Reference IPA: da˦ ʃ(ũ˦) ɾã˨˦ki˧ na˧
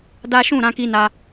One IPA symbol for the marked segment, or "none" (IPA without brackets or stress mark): ũ˦˨